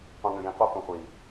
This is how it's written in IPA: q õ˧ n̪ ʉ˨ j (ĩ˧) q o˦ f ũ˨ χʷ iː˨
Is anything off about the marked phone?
no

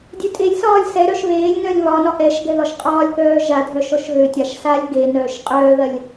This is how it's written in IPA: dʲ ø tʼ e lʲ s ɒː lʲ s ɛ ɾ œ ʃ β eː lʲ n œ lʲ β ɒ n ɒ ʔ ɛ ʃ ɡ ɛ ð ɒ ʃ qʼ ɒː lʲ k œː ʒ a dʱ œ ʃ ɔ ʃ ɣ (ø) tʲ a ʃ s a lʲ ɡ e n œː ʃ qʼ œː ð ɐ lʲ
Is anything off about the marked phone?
no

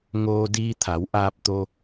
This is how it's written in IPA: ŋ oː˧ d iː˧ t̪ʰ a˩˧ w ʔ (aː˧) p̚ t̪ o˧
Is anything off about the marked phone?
no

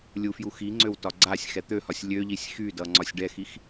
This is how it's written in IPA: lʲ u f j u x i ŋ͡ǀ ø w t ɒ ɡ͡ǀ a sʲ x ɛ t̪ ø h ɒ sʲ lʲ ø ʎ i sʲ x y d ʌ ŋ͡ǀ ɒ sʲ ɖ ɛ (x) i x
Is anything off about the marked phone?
no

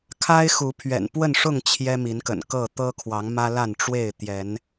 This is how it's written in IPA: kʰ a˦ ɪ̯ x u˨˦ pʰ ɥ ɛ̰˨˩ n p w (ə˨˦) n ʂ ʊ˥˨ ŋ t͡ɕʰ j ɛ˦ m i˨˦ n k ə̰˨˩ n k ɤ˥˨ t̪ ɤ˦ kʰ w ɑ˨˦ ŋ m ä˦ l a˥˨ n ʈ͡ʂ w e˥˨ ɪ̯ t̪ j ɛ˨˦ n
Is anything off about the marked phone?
yes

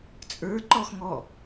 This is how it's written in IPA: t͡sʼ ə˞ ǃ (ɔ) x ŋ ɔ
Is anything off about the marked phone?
no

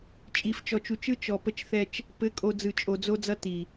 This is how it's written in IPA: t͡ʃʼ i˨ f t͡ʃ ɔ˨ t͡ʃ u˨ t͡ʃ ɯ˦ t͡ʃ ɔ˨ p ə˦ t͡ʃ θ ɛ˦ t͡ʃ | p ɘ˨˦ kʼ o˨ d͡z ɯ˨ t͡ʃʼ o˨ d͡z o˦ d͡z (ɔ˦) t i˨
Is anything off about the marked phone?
yes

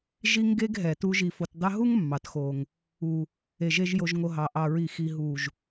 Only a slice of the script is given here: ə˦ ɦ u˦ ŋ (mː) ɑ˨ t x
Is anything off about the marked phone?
no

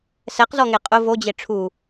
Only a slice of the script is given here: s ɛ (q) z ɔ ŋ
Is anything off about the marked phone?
no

